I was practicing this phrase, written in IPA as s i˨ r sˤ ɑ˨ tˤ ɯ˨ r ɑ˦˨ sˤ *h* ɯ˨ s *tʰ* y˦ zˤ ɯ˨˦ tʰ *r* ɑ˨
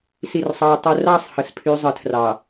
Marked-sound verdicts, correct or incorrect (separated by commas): correct, incorrect, correct